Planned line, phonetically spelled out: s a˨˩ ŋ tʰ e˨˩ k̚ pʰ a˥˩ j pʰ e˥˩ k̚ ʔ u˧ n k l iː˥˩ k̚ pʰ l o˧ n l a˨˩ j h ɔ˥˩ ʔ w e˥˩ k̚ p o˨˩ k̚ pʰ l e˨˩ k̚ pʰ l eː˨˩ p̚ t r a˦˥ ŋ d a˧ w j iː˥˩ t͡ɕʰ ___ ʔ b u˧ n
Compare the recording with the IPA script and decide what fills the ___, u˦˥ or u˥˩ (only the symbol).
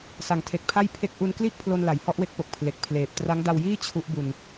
u˦˥